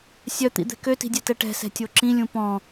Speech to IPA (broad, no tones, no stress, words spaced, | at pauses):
sʲœt̪ḭd̪ɛ̤ køti̤dʲɛtɛ ʈɛ̤sɛ̤tʲo ǁĩlʲũ pɔ̃